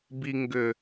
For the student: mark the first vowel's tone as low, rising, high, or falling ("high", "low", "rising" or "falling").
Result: low